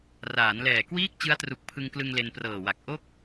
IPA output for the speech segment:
r aː˩˦ n l ɛː˨˩ k w iː˥˩ k̚ t͡ɕ ɯ˦˥ a̯ t r u˨˩ k̚ pʰ ɯ˧ ŋ k l ɯ˧ ŋ l e˧ n p r ɤː˨˩ w a˨˩ k̚ ʔ o˥˩ k̚

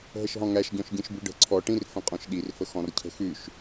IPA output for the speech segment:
ɦ ə ʃ ɦ ɔ̃ ŋ æ ʃ ɟ ɔ̃ ʃ ɟ ĩ ʃ b ʉ ɖ ə̤ ǀʰ ɔ ʈ ĩ r f ə̃ qʼ ɔ̃ ʃ ɗ i r f ə x ɔ̃ r cʰ ə̤ x ʉ ʃ

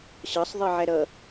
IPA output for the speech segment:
ɕ ɑ sˤ ðˤ i ʕ æ ɾ ʌ

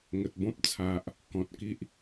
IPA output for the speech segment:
ŋ ə˨ t̚ b ɔ̃˦ p̚ t͡sʰ a˨ ʔ | k ɔ̃˨ t̚ k i˦ ʔ

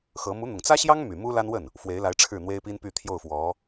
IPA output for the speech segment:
x ɤ˧˥ m u˧˥ n̪ ʊ˨˩ ŋ t͡s ä˥ ɕ j ɑ˥ ŋ m y˨˩ m u˥ l a˥ n w ə˥˩ n | f w e˧˥ ɪ̯ l a˧˥ ɪ̯ ʈ͡ʂʰ ɻ̩˥˩ n̪ w e˥ ɪ̯ p i˥ n p y˥˧ t̪ʰ j o˥˩ ʊ̯ f w ɔ˧˥

